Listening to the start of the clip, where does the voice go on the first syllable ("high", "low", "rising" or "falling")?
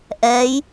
rising